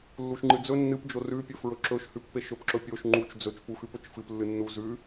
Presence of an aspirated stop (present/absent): absent